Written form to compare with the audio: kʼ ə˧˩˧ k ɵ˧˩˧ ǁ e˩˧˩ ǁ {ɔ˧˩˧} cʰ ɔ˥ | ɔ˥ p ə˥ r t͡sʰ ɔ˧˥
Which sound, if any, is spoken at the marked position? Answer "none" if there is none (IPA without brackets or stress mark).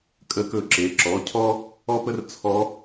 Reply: ɔ˩˧˩